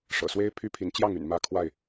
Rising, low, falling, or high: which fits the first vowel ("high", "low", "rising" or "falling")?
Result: low